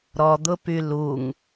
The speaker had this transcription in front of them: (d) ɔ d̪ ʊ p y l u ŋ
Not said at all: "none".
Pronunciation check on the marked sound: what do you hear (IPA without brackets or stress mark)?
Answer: ɾ